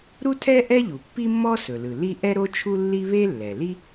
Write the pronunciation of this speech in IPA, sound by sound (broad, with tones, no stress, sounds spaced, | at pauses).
ɾ u˥ tʰ ɛ˥ ʔ ɛ˥ ʎ u˩ pː i˥ mː ɔ˥ s ɵ˩ l ɯ˩ l i˥ ʔ ɛ˥ ɾ o˥ t͡ʃʰ u˥ lː i˥ β e˥ lː ɛ˩ l i˥